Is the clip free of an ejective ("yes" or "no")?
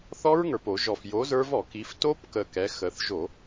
yes